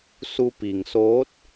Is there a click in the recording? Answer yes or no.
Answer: no